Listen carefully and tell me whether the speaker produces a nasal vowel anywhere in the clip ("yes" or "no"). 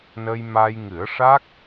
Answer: no